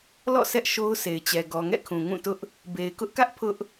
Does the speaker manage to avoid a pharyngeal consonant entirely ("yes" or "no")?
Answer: yes